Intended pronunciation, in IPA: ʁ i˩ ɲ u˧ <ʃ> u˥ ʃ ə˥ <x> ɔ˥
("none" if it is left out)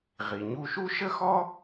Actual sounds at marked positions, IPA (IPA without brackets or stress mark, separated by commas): ʃ, x